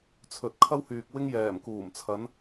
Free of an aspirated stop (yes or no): no